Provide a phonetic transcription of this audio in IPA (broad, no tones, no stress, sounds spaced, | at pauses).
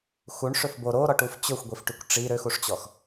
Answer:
x u ɳ ʂ ø f b o ɾ o ɾ ɔ ʈ u f t͡ɕ ɵ xʷ ɡʷ i f ʈ y kʷ ʈ͡ʂ i ɾ ø x u ʂ t͡ɕ ɔ x